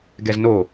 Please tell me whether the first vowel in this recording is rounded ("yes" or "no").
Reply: no